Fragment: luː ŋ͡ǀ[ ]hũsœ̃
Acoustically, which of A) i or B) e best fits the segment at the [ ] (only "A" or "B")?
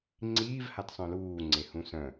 B